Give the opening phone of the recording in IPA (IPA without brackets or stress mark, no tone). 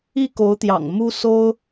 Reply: i